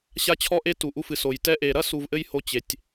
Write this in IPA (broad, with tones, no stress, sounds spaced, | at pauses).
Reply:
ɕ a˧ t͡ɕʰ ɔ˧ ʔ e˧ t u˩ ʔ u˧ f ɨ˩ s o˩ j t ɛ˧ ʔ e˩ ɾ ɐ˥ s u˧ v ʔ ɘ˥ j h o˧ t͡ɕ e˩ tʲ